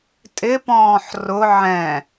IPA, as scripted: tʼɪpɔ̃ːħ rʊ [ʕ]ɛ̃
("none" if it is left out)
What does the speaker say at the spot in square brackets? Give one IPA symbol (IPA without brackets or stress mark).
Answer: ʕ